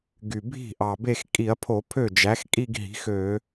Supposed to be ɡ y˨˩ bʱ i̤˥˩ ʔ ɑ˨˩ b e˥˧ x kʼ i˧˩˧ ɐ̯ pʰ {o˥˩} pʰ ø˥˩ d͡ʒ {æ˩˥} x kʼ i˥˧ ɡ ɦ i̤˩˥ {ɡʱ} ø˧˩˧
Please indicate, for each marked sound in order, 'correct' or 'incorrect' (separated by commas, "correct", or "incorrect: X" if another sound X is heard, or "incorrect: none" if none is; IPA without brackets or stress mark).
incorrect: o˧˩˧, correct, incorrect: x